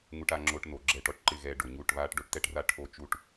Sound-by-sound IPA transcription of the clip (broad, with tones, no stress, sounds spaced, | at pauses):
ŋ u˧ ʈ a˧ ŋ͡ǁ o˧ ʈ n o˨ ɡ͡ǁ ɛ˧ ʈ ɔ˨ ʈ ǃ ɪ˦˨ ɣ ɛː˧ ɖ o˨ ɲ u˦˨ ʈ β aː˦ ʈ ɖ o˦ ʈ t ɛ˦ ʈ r a˦ ʈʰ o˦ t͡ʃ u˦ ʈ